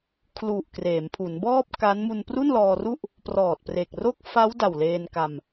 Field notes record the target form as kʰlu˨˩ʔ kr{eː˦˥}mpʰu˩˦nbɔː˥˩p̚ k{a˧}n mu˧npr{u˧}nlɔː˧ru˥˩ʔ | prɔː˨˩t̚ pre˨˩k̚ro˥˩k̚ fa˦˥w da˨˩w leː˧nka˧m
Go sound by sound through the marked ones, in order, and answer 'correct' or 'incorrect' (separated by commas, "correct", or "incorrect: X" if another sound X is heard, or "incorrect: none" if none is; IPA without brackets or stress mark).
incorrect: eː˩˦, incorrect: a˦˥, incorrect: u˥˩